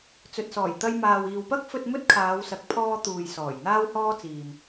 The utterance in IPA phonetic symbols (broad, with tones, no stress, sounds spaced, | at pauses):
t͡s ɵ˨ t̚ s ɔː˨˩ j t̪ ɐ˧ j m aː˨ w iː˨ w p ɐ˥ k̚ f ɵ˧ t̚ m ɵ˥ t̚ kʰ aː˨˧ w s ɐ˨ k̚ pʰ ɔː˧ t̪ uː˨ j s ɔː˨˩ j n̪ aː˥ w h ɔː˥ t͡s iː˨ m